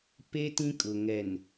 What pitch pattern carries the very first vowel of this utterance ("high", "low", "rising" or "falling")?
high